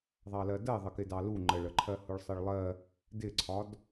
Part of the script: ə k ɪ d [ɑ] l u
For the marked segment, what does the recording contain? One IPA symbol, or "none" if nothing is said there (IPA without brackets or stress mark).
ɑ